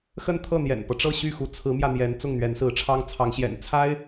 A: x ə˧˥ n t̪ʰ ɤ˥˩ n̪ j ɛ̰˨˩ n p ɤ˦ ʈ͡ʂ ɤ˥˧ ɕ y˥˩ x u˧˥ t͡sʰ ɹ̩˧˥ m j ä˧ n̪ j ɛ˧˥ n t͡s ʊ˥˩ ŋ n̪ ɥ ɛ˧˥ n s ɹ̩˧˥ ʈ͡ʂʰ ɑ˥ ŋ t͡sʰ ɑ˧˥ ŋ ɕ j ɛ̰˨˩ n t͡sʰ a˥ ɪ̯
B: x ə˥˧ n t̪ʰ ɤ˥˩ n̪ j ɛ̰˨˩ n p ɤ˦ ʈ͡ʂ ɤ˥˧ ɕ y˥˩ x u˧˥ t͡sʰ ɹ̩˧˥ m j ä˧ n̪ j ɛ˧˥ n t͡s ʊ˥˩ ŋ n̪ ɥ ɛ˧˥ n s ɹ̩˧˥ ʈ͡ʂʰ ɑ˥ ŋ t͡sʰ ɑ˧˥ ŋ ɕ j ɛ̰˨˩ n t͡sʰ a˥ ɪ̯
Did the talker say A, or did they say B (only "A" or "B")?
B